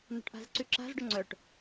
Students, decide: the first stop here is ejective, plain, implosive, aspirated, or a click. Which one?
plain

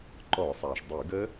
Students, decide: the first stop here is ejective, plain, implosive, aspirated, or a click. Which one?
click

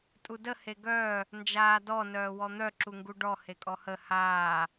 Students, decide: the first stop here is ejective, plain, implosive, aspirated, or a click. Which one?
ejective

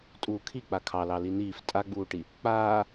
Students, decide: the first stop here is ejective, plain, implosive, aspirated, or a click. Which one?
ejective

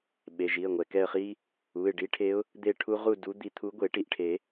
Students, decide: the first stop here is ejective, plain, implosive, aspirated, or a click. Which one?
implosive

